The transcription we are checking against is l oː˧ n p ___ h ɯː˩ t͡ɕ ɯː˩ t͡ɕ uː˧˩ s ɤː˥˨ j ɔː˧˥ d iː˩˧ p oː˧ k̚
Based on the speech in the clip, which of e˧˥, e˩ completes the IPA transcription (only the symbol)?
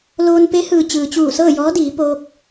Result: e˧˥